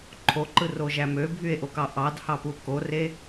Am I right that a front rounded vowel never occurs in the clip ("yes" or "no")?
no